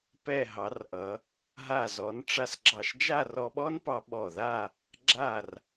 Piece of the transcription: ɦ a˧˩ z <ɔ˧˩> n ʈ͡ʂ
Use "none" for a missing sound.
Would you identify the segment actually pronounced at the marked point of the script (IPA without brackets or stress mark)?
ɔ˩˧